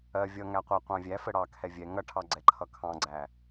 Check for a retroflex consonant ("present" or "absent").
present